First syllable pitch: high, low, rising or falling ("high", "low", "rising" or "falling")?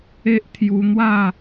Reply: high